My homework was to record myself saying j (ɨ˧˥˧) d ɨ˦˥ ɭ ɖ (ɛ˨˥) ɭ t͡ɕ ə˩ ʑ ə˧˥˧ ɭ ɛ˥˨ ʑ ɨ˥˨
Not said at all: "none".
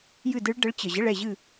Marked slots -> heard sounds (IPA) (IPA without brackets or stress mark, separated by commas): ɨ˥˨, ə˨˥